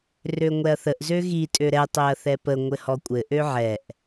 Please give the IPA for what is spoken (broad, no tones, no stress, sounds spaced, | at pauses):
r ø ŋʷ ɛ ɐ̯ θ ə ʔ z ø ɣ i tʼ ø ɾ ɛ tˤ ø ɐ̯ θ ɛ p ə ŋʷ ɘ h ɔ kʷʼ ɘ ʔ ø ʕ ɛ ʔ